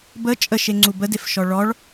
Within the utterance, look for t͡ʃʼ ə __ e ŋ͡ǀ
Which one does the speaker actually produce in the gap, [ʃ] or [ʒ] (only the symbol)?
ʃ